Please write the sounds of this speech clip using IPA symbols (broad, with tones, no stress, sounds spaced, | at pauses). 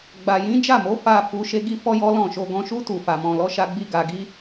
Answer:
ɡ͡b a˨ j ĩ˨˦ d͡ʒ a˦˨ m o˨˦ f a˦˨ f u˧ ʃ e˦ ɡ i˦ f ɔ˦ j ɔ˦ l ɔ̃˦˨ ʃ o˧ ɡ ɔ̃˧ ʃ u˦ t u˦˨ f a˧ m ɔ̃˧ l ɔ˦ ʃ a˦ ɡ͡b i˦ ɡ a˧ ɡ i˦